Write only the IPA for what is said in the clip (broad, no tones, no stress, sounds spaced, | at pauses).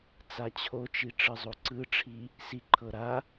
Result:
t͡s a t͡ɕʰ o t͡ʃ i ʈ͡ʂ ɯ zˤ o ǀ ɯ ʈ͡ʂʰ i | s i ǃʰ ɤ ɾ a